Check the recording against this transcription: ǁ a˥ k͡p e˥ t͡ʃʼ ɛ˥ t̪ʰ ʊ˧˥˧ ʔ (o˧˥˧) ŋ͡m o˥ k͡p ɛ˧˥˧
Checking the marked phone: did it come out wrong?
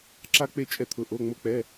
no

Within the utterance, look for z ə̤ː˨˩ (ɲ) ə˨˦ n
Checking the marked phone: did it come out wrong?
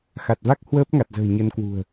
no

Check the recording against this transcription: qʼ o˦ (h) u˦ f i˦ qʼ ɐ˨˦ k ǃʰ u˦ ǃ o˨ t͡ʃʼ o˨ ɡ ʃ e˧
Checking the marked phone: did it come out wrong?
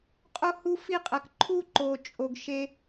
no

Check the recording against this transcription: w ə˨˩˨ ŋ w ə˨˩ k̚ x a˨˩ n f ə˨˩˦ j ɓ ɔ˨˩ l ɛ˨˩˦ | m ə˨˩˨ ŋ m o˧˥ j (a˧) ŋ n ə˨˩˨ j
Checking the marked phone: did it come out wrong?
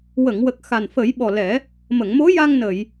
no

